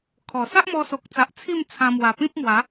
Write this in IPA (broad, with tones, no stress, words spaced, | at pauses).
kʰɔ˨˩ sa˦ʔmɔ˧so˨k̚t͡sa˨ʔ t͡sʰi˥˧mt͡sʰã˧ mwa˨˩pĩ˦p̚mwa˨˦